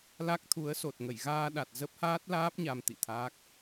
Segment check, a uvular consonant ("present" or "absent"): absent